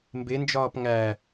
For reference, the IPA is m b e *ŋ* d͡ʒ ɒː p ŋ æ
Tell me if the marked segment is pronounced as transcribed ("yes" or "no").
no